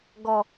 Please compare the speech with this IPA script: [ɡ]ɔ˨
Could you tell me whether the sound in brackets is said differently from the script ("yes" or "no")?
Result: no